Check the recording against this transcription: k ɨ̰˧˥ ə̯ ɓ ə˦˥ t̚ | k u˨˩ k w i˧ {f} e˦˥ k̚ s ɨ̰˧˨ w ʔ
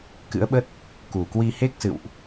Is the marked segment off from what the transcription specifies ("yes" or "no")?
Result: yes